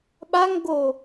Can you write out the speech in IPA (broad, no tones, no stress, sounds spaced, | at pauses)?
ɓ a ŋ ɡ o